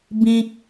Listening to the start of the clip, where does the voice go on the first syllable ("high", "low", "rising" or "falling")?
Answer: high